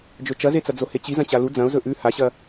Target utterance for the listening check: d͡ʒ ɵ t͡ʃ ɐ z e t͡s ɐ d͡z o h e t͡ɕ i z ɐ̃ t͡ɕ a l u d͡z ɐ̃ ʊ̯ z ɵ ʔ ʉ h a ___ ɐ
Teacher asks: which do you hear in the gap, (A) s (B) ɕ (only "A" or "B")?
B